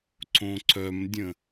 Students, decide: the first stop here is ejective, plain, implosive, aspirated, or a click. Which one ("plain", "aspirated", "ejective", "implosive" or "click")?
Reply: click